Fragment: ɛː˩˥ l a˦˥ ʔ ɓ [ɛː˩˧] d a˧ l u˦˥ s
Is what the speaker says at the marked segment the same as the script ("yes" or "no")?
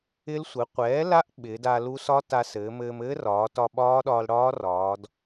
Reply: no